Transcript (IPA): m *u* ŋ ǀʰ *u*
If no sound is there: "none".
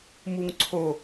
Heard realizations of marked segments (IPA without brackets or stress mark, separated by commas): u, o